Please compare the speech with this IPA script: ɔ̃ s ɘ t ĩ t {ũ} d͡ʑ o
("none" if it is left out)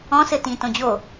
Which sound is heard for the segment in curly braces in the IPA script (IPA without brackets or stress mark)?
õ